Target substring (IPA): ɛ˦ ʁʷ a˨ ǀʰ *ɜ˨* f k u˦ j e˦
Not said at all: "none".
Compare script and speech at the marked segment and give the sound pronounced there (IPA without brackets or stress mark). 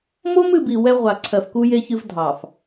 ɜ˨